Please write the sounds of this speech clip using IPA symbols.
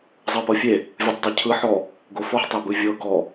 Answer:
zˤɤpɤfʲe | vʲɯtˤdˤecʰɯ ħɔ | ɡofɔħ tˤebɯvʲɤ ɡɔ

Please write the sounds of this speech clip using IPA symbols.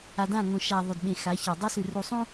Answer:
a˨dã˦˨ŋõ˨ ʃa˨ ðˤɵ˨dɓẽ˨xa˨˦ça˨ dˤa˦sʉ˨ru˨sˤũ˦

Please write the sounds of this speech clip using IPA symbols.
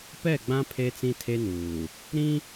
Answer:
pɛ˦˨ɡ͡bã˦ pʰe˦t͡sĩ˦tʰe˦nuː˨ | ɾĩ˦

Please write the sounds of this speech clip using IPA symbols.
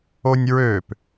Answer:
onʲɹøp

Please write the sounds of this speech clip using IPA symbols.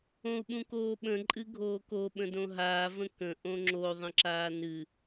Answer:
õu̯ɓũkoːɓə̃ ǃʼɨɡʱoːko ɓə̃dõɦaː və̃kə̃ ʔõŋ͡ǁo ðˤə̃ǁaːnɨ

